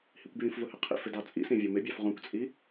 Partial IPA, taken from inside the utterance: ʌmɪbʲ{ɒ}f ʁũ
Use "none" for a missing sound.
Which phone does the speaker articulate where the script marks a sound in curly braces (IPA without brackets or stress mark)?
ɑ